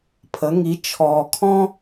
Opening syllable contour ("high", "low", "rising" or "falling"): rising